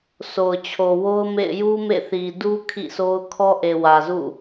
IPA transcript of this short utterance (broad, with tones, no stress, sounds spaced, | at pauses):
sʰ o˨ ʊ̯ t͡ɕʰ o˨ w o˦ ʊ̯ m ḛ˦˨ ɪ̯ j u˦ m ḛ˦˨ θ i˨ d u˦ kʰ ḭ˦˨ sʰ o˦ ʊ̯ kʰ ɔ˦ ʔ e˨ w ä˨ z ṵ˦˨